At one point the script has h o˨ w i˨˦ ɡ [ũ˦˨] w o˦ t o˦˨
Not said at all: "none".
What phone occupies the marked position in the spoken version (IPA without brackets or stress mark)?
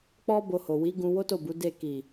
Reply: ũ˧